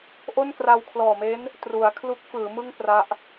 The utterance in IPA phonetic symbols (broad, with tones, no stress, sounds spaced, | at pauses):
ʔ o˥˩ n k r a˧ w kʰ l ɔː˨˩ m e˦˥ n | t r u˩˦ a̯ kʰ l u˦˥ k̚ f ɯː˩˦ m ɯ˥˩ ŋ p r a˦˥ ʔ